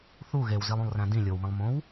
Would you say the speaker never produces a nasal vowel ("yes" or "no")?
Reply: no